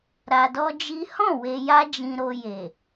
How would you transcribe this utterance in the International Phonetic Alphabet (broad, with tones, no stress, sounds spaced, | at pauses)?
ɾ a˧ d ɔ˦ d͡ʒ i˦ h ɔ̃˦˨ w e˧ j a˦ d͡ʒ ĩ˧ ɾ o˧ j e˨